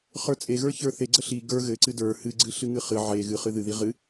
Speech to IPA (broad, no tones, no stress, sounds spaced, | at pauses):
χ ə˞ t͡sʼ e ɣ ə˞ ç ə˞ θ e ɡ͡ǀ ə ɬ i ɡ ə˞ ɣ ɘ ǀ ɨ d ə˞ h ɨ ɡ͡ǀ ɨ ɬ ɨ ŋ ɨ χ ɨ ʕ e ɣ ɨ χ ɨ ð ɨ ð i ʁ ɨ